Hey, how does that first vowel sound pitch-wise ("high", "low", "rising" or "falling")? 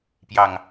low